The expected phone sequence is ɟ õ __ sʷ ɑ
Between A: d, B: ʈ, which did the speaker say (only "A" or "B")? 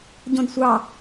A